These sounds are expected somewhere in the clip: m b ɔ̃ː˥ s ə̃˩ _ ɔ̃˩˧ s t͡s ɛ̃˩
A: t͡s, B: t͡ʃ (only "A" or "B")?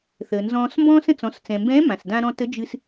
A